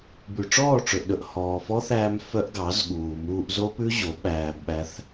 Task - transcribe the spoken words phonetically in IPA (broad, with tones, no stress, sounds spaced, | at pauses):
b ʉ˨ ʈ͡ʂ ɔː˦˨ ʈ͡ʂ ɵ˨ ʔ ɗ ɵ˨ ʔ h ɔː˨ f ɔ˦ θ æː˧ m f œ˦ ʔ ɡ ɑ˨˦ z ɠ uː˨ m uː˧ ʔ z o˦ p ʉ˦ ʑ o˨˦ ɓ æː˧ b ɓ æ˦ θ